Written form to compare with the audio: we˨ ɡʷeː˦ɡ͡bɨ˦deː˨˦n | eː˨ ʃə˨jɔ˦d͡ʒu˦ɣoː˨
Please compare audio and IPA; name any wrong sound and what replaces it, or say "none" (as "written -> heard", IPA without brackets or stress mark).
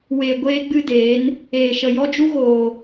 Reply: none